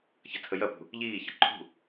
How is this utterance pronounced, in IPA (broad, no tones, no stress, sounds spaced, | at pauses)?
ç ɐ tʰ ə j ɐ p ṳ | ʎ iː ç ə ǃʰ ṳ